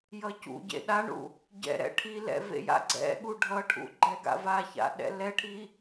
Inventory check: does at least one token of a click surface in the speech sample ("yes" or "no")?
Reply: yes